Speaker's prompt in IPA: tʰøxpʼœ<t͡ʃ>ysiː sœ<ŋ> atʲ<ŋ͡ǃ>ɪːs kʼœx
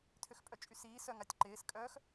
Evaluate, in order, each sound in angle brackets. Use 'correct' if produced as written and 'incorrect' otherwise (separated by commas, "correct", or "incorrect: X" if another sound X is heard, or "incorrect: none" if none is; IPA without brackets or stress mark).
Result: incorrect: t͡ʃʼ, correct, incorrect: ǃ